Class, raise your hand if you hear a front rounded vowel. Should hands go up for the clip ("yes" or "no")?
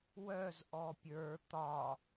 yes